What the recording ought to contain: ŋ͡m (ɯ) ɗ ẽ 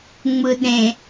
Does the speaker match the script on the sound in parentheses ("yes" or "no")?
yes